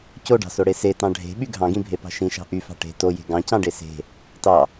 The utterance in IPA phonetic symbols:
coɖɑ̤soɽe setɑ̃ ɖʱe̤ɓy ɡʱɑ̃ɡĩbʱepɑ̤ ʃĩʃɑ̤ ʔyfɑ̤ ʈe̤ toje̤ ɡɑ̃cɑ̃ɖe se̤ | tɑ

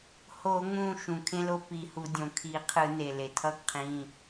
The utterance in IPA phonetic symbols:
ho˧˩˧ŋũ˧˩ ʃũ˩kʰẽ˦lo˦ pi˧˩˧hu˧˩˧ dʲõ˩kʰi˧˩˧qʰɯ˧˩˧ne˩ le˩tʰʌ˦ɡ qʰĩ˩˧˩

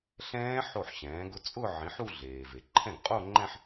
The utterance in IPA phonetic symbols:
ɬɛ̃ː˦˥ ħo˥˩ħɕɛ̃ː˩˥ɡʊ˦˥ t͡sʼʊ˥˧ ʕĩ˩˥ħu˥˧ ɮeː˩ve˩ ǃʰɛ̃˥˩ɡqʼo˥˧ŋ͡ǃɛ̃˥˧ħ

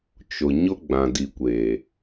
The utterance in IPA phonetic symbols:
t͡ʃʊ˨ɲʊ˦ ɡ͡bã˨ di˨kʷeː˨

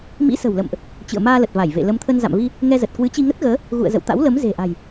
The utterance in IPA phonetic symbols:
mḭ˧˥sə̤˨˩wlə̰˧˨mʔ | t͡ɕɨ̰˧˨ə̯maː˧lə˨˩t̚ va˧˩jvḛ˧˨ lə˨˦mt̪ʰə˧n za̰˧˨mvi˧ | ŋɛ˧zə˨˩t̚ kwɨ˨˦t͡ɕi˧ŋə˦˥t̚ɣəː˨˦ | ɣṵ˧˨ə̯zə̰˧˨w t̪a̰˧˥wlə˨˦m ze̤˨˩ʔa̤˨˩j

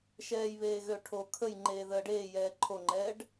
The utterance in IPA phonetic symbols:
ʃɛːjβeːɣøʈʰo kʰəj ŋ͡ǃeːðəːɖeː jɛːǃʰoŋ͡ǃɛːɖ

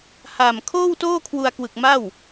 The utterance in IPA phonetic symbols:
ha˨˩m kʰoː˥˩wtoː˥˩kʰwu˧a̯kwɯ˨˩k̚ ma˥˩w

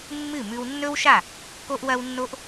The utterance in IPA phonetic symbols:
mːɨ˦˨mʉ˧w nːɵ˦wʃa˦˨ | ko˦ʔwɐ˦wnːo˦ʔ

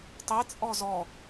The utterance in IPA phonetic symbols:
tˤit͡sʼɔ zɔ

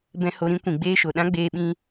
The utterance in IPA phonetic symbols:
bɛ̃˧ ho˧ɾĩ˦ kʷĩ˨ɡ͡beː˦ʃo˨ ɗã˦ɡ͡beː˧ɓĩ˧

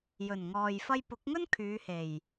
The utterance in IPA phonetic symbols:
jɵ˨˩nŋɔː˨j fɐ˧jpʊ˨˥k̚ŋɵ˥n kʰyː˨˧he˨˩j

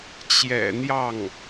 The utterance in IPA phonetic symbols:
t͡ɕjɛ̰˨˩n̪jɑ˥˩ŋ

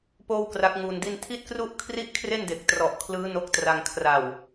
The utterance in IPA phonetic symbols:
poː˥˩wkra˦˥k̚ŋuː˧ndi˥˩n tʰi˥˩t̚kru˥˩ʔ kʰri˥˩ʔkʰre˥˩nde˨˩k̚ trɔ˨˩ʔkʰlɯː˦˥ no˦˥k̚tra˧ŋ kʰra˨˩w

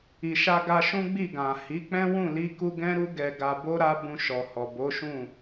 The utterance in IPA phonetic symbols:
i˨ʃa˧ɡa˧ ʃũ˦ɡ͡bi˦˨ɡã˨ hi˨˦k͡pɛ̃˦wũ˦˨ li˧ku˧ ɡɛ̃˦ɾu˦ɡɛ˧ ɡa˧bo˦ɾa˦ bũ˧ʃɔ˨hɔ˨ bo˨˦ʃũ˦˨

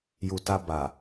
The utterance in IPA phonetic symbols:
ju˨ ta˧ ba˨

